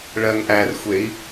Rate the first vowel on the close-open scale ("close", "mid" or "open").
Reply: mid